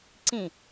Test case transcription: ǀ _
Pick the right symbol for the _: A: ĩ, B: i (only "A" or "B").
A